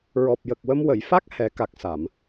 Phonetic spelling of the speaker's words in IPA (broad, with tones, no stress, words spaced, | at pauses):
ɹɔ˨˩p̚ jə˨˩k̚wə˧m wə˨˩˨jfa˦˥k̚ hɛ˨˩˦ka˨˩k̚sa˨˩˨m